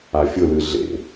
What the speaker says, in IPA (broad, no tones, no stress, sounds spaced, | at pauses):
a fʲ ʊ l ɨ ɮ ḛ